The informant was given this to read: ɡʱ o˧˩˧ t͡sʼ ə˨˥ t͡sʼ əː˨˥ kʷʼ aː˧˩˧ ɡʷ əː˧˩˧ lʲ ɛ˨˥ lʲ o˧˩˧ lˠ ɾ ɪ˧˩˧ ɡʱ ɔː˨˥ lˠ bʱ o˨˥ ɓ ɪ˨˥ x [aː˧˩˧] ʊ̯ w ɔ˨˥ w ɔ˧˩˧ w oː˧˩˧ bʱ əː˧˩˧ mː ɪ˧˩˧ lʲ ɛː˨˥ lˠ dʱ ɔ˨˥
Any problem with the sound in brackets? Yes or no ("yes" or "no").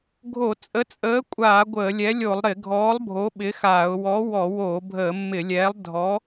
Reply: no